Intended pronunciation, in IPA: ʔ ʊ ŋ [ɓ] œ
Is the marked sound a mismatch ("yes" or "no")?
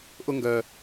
yes